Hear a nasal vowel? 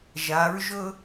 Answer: no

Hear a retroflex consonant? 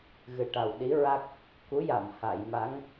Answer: yes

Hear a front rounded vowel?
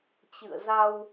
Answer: no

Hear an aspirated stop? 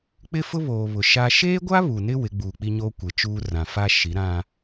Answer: no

